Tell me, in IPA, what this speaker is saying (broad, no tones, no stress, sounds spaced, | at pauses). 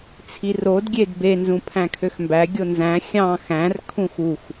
t͡sʰ i r o d ɡʲ e d b e n z ũ pʰ æ̃ kʰ ø x m b æ ɡʲ o n z æ̃ xʲ ɑ̃ x æ̃ r kʰ ũ x u x